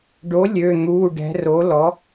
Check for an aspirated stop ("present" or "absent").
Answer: absent